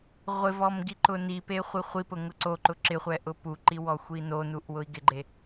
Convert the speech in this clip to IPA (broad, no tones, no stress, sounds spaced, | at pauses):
ʁʷ ɪ v ɔ m ɡ i ǃ ʊ n i p e χʷ i χʷ i p ʊ ŋ ʊ ǀ o ǃ ʊ ǁ ɪ χʷ ɛ ʔ ʊ p u ǃ i w ɔ xʷ i n o n u ʔ w ʊ i̯ ɡ ɪ ɡ͡ǃ e